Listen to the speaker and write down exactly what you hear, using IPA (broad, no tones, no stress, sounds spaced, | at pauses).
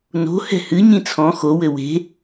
n o̤ h ɛ̤ h ɨ ɲ ĩ t͡sʰ ɔ̃ x o w ɘ w e̤